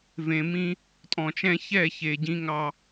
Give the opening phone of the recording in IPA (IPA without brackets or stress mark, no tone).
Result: v